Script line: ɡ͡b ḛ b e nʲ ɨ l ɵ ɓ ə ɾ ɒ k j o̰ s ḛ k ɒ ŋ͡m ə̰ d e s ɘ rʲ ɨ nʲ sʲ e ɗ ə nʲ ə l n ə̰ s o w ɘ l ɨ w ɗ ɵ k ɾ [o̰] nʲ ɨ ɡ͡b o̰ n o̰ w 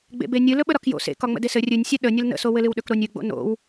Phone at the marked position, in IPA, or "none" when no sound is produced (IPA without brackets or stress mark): o